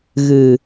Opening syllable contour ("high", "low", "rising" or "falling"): low